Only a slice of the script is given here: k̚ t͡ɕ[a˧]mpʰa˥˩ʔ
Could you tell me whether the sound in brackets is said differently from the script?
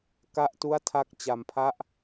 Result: no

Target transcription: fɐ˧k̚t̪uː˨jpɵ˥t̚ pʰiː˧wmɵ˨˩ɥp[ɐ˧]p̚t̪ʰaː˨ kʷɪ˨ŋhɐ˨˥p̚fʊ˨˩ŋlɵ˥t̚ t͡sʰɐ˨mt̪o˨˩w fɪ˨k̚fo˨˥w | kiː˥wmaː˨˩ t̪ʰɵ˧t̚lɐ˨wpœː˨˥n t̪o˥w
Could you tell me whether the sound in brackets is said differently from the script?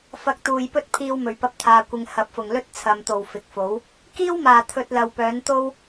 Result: no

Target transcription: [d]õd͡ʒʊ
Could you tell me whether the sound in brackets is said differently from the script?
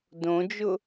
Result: no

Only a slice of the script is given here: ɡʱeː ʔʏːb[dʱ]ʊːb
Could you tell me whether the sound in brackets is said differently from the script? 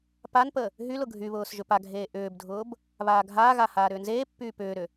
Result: no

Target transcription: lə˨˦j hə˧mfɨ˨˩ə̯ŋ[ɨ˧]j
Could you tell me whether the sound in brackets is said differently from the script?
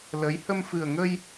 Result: yes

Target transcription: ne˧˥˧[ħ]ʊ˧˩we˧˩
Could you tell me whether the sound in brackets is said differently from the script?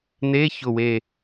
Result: yes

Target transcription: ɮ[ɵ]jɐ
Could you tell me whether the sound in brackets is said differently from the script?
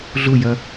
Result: yes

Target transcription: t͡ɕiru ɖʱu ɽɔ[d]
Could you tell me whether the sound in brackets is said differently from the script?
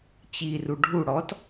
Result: yes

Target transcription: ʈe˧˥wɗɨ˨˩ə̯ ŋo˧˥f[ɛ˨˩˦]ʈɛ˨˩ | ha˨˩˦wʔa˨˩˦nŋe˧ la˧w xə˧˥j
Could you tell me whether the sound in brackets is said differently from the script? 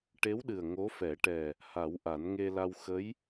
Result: no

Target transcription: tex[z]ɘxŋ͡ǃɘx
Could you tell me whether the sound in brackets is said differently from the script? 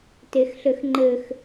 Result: yes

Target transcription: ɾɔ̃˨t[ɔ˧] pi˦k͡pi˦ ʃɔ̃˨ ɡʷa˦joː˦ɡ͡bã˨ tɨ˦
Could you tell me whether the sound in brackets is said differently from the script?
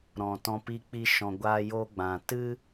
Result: yes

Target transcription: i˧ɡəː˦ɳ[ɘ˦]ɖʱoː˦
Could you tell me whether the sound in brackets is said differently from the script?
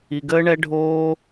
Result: yes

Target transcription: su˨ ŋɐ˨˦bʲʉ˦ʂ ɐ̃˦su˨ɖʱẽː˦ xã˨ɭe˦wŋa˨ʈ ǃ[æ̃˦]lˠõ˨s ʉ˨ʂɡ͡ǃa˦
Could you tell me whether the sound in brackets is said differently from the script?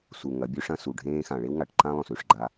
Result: yes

